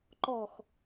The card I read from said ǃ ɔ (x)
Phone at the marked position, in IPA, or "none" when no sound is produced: x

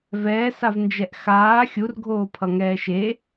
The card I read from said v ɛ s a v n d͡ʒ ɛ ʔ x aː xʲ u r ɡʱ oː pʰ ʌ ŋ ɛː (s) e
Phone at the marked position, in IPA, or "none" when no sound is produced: ʃ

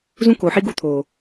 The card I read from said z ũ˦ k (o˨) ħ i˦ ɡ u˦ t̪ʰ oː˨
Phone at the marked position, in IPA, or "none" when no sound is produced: o˨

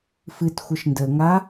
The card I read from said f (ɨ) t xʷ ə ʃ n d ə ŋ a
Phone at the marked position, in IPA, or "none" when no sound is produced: ɨ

